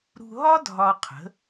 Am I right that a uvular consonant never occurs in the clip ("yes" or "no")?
no